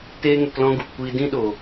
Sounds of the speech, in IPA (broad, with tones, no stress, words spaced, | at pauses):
teː˦ŋɛ˧klɔ̃˦ ɡu˨pkʷiː˧ dĩ˦ɗo˨